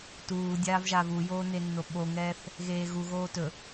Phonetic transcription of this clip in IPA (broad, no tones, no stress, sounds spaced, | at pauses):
t uː dʲ aː v ʒ aː v u j oː n e nː o ɓ o ŋ ɛː θ | ɣ eː ɣ u ɣ oː t ɵ